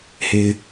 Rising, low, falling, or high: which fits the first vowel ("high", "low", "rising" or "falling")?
low